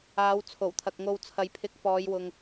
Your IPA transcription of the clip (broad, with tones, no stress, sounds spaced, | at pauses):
aː˨˧ w t͡sʰ o˨˩ w t̪ʰ ɐ˨ k̚ ŋ o˧ w t͡sʰ ɐ˨ j pʰ ɪ˨˥ k̚ f ɔː˨˧ j w ʊ˨ ŋ